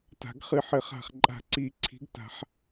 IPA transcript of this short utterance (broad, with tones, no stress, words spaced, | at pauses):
ta̤˨˩˦ɡχɨ˨˩˦ħɘ˨˩˦χ a̤˨˩χǃʼa̤˨˩ǀi˨˩˦ ǀʰi̤˨˩˦ɡ ta̤˨˩˦ħ